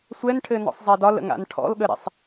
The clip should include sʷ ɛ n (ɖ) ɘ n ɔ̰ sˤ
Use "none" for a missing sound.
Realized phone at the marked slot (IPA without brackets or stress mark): ʈʰ